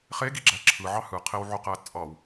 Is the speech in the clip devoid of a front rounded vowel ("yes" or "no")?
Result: no